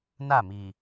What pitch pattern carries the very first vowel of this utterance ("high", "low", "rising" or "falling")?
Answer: falling